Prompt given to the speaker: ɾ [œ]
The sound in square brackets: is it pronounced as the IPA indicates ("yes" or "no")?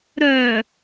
yes